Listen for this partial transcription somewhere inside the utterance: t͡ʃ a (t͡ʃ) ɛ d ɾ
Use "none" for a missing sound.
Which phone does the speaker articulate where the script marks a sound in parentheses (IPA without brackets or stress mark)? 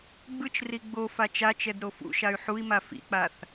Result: t͡ʃ